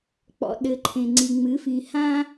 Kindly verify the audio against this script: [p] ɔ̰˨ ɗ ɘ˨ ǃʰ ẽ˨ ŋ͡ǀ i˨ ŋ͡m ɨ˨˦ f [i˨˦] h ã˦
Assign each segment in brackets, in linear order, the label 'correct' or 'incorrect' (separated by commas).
incorrect, incorrect